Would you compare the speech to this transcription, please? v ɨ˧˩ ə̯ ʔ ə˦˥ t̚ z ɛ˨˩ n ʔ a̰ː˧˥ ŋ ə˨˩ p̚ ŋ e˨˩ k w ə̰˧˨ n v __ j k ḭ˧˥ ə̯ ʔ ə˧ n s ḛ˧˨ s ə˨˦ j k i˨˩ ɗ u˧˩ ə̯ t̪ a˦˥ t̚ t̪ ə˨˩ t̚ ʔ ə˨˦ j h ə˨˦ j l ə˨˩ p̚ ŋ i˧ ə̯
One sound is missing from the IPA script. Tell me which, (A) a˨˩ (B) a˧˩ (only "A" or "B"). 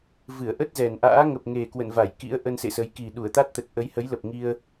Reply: B